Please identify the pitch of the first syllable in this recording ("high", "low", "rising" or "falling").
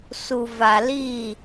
low